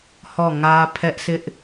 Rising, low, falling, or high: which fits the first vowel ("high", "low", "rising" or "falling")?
falling